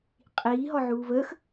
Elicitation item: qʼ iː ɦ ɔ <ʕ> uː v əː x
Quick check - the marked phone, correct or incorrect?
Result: correct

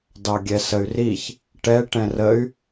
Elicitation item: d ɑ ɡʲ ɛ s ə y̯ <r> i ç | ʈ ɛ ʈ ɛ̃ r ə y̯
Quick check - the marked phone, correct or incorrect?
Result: correct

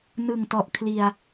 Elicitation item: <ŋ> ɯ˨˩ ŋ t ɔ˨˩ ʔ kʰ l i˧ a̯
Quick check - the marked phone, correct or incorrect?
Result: incorrect: n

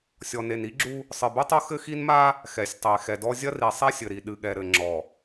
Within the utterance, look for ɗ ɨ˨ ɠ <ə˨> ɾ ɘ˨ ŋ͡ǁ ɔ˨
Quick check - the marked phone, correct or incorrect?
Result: incorrect: ɛ˨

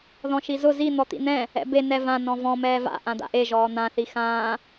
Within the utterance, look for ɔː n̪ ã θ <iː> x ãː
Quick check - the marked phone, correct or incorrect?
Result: incorrect: i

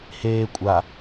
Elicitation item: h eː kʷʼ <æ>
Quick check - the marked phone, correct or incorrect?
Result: incorrect: a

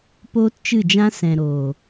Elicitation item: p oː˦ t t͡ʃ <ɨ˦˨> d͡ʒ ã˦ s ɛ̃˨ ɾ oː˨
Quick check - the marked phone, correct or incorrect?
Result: correct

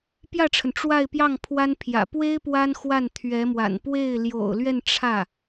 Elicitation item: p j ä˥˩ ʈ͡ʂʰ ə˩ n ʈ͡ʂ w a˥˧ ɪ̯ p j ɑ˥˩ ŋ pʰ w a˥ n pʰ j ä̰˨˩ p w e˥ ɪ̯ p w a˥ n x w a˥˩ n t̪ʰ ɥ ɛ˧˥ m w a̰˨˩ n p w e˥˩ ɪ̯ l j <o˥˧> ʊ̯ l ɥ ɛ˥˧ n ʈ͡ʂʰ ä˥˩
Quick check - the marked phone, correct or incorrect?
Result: incorrect: o̰˨˩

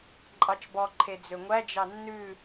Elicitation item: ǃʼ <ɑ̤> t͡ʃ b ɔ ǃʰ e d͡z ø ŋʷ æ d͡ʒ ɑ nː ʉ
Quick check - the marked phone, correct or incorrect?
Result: incorrect: ɑ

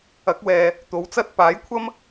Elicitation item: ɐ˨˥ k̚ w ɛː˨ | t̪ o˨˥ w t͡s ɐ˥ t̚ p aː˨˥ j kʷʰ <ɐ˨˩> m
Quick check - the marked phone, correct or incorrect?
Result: incorrect: ɐ˥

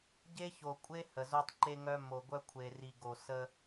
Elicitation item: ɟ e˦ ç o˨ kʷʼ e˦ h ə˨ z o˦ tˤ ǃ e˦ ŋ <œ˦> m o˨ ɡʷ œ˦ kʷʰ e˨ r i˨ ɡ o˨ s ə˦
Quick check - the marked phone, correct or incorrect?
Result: correct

